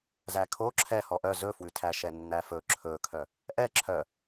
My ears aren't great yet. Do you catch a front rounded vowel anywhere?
yes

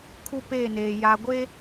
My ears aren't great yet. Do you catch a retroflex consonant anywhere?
no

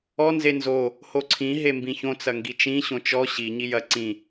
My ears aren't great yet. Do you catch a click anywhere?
yes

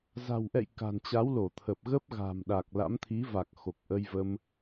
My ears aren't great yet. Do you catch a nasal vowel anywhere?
no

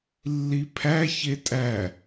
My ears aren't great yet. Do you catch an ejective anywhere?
yes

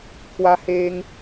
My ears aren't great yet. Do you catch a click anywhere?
no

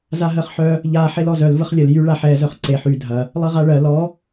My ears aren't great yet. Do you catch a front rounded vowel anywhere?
yes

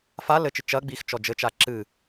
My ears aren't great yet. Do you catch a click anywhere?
yes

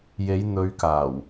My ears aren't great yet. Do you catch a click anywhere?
no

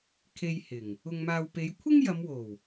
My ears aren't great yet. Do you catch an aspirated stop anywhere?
yes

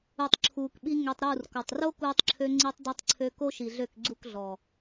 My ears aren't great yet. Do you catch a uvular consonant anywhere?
no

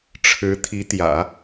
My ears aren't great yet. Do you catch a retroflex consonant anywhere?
yes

